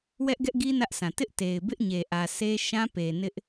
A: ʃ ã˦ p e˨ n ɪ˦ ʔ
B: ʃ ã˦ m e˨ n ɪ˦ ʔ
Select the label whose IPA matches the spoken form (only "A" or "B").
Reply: A